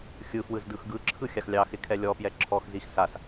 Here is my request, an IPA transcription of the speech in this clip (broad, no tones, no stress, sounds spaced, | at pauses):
xʲ ɯ f w ɯ z d ɯ x ɡ ɯ ǁʰ ɯ xʲ a x lʲ ɑ x ɪ kʰ ɛ lʲ ɔ p j ɛ ǁʰ ɔ x z i x s a s